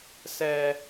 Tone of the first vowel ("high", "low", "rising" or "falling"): high